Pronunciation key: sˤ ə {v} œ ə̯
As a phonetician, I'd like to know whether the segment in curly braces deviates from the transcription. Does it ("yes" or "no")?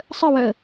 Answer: yes